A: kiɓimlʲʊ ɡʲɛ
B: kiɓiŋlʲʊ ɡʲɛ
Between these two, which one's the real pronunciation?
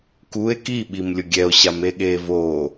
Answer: A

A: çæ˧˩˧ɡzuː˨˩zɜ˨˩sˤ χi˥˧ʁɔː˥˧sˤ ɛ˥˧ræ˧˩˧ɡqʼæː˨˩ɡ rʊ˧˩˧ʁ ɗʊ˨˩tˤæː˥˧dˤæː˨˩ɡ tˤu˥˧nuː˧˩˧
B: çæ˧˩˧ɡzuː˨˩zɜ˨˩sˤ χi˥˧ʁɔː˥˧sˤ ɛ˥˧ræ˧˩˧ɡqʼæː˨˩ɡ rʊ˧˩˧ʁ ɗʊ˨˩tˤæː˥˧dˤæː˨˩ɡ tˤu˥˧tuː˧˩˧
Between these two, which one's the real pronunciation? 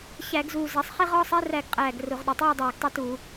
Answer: B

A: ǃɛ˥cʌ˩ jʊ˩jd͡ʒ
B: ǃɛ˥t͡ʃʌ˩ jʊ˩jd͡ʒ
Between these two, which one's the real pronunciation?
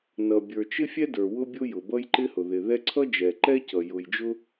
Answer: A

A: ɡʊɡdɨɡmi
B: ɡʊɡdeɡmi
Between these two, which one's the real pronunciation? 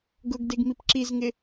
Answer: B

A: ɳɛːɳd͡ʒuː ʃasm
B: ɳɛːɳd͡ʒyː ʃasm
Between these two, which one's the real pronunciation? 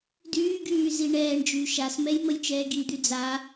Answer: B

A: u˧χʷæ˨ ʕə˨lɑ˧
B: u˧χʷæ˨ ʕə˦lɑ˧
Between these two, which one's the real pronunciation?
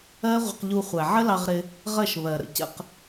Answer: B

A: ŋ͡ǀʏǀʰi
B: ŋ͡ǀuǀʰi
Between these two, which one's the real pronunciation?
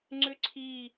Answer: A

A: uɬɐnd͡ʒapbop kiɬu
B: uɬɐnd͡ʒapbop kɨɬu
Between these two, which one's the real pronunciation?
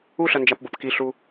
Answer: A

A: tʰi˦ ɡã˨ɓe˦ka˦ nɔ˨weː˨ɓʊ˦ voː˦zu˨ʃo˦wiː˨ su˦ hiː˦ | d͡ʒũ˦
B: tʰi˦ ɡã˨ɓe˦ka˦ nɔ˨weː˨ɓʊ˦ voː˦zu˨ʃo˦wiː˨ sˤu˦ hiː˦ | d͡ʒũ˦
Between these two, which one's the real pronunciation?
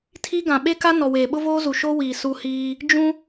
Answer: A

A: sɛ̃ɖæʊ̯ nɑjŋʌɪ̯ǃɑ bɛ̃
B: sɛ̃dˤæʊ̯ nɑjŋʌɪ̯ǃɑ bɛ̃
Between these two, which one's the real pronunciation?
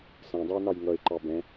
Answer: B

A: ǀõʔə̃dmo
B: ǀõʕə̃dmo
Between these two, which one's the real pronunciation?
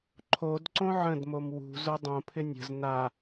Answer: B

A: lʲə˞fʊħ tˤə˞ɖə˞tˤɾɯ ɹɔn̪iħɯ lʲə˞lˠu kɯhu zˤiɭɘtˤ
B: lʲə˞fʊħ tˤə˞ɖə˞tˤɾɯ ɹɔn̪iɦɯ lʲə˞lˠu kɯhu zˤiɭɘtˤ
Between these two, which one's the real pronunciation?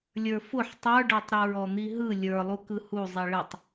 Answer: B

